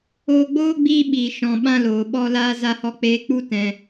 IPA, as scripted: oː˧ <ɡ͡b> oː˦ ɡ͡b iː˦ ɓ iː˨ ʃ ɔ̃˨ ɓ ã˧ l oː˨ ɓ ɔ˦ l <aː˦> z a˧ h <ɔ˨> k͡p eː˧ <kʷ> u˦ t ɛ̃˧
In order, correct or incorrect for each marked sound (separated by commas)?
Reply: correct, correct, incorrect, incorrect